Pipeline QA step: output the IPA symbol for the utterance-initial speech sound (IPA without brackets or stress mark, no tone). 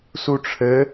s